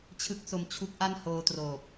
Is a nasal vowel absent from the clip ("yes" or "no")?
yes